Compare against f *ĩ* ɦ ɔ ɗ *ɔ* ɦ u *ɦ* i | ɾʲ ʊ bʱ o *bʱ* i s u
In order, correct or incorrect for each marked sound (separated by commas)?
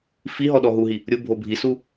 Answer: incorrect, correct, correct, correct